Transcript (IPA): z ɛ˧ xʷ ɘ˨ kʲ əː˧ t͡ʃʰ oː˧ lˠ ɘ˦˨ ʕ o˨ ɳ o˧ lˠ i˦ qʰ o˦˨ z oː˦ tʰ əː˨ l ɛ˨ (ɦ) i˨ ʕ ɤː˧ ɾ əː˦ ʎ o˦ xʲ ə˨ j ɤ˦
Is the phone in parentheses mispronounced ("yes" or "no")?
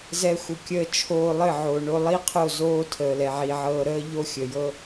yes